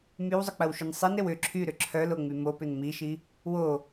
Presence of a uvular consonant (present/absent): absent